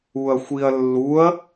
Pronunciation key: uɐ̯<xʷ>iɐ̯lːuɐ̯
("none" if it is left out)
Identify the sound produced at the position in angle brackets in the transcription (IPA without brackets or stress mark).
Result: xʷ